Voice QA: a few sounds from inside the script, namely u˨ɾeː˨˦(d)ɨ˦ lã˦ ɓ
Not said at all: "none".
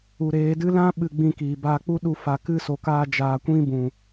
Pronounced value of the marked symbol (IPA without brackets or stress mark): d